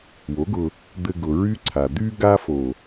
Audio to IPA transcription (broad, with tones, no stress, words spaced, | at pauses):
wo˨˦ɡʊ˧ | d̪ɘ˧ɡʊ˨ɹy˦ǀʰa˨ d̪y˧ɡa˧fo˨